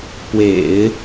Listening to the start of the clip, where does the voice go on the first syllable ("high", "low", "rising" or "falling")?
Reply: low